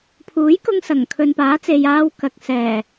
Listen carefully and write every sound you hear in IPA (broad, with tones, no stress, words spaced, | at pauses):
pʰuː˨˥jkʊ˧ŋ sɐ˨˩ŋkʰɵ˨npaː˨˥t͡se˨j aː˥wkɐ˧k̚ sɛː˨˩